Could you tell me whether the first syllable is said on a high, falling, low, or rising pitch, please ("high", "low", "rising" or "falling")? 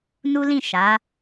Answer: high